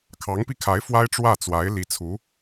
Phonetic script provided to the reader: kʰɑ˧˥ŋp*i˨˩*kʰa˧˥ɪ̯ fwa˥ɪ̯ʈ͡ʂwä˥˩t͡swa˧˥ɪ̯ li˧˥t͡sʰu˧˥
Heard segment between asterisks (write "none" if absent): i˧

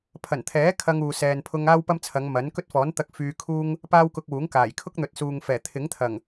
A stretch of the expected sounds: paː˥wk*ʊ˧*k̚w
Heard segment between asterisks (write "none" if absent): ʊ˧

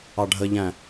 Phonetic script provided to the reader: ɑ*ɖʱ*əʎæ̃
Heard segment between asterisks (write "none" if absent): ɖʱ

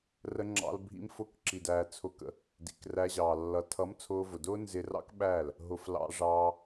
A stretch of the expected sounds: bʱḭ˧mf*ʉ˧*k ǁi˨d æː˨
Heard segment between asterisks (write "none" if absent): ʊ˧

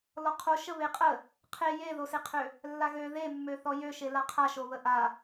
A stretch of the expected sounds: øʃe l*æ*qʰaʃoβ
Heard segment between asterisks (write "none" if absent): a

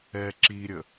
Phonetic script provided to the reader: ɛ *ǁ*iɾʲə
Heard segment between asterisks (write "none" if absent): ǁ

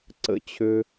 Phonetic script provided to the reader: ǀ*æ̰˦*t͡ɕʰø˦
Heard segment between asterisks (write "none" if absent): ə̰˦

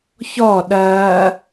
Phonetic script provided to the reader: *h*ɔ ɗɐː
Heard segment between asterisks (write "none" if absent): ç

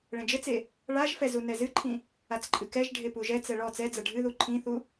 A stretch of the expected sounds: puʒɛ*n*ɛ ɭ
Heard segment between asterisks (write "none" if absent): t͡s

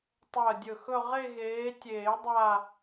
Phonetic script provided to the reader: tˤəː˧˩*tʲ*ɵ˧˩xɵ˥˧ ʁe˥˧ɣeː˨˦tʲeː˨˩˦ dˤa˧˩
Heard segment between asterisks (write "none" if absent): dʲ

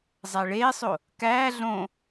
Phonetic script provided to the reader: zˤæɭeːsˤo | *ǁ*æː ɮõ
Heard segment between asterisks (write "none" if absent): k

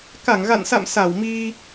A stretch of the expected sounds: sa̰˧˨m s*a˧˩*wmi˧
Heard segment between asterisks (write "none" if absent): a˧˩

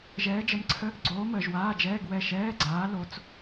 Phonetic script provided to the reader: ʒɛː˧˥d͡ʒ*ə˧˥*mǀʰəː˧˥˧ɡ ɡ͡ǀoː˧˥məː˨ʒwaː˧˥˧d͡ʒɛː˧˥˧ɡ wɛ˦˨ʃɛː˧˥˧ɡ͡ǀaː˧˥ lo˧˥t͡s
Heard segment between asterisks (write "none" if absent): ə˧˥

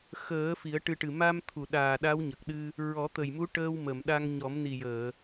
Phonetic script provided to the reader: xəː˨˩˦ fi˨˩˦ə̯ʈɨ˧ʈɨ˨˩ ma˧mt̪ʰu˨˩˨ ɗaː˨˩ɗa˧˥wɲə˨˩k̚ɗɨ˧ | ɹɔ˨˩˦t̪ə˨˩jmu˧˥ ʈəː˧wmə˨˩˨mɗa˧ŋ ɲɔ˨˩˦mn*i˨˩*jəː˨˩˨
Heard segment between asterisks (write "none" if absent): i˨˩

